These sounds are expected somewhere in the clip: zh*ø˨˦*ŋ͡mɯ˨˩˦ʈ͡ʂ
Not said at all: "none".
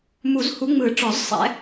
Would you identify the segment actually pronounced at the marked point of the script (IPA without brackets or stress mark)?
u˨˦